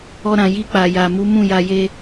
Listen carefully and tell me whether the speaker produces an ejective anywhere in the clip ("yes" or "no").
no